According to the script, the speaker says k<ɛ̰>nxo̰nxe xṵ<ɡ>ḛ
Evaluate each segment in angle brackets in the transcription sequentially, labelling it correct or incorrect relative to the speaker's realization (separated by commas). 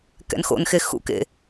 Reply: correct, incorrect